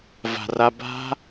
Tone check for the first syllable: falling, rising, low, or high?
low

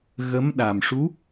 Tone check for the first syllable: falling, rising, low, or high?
rising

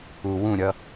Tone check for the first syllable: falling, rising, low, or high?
low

